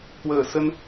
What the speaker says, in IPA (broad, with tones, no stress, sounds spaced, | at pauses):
k w əː˧˩ s ə˧ n